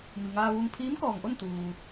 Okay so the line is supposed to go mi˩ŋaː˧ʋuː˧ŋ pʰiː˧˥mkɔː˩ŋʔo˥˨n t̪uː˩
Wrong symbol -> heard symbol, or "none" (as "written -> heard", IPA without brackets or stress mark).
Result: none